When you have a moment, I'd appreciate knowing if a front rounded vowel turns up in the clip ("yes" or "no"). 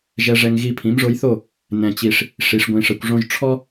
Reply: no